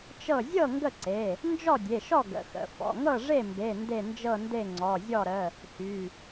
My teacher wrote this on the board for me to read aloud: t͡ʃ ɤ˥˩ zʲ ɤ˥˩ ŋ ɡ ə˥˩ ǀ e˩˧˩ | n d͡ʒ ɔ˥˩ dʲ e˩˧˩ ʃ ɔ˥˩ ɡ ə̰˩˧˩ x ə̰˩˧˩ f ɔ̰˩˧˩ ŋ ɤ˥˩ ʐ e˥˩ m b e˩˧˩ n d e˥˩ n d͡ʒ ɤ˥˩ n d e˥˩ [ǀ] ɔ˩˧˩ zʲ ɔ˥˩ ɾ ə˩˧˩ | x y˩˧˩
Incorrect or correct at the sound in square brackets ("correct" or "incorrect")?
incorrect